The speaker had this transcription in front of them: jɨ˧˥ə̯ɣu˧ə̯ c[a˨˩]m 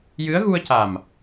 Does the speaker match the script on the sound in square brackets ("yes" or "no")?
yes